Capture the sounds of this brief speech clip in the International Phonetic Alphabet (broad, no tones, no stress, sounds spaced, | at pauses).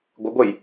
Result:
ɡʷ ɪ ɡʷ e j